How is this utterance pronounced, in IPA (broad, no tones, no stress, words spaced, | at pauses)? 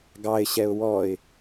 ɡɑɪ̯ɕɛʊ̯ wɔɪ̯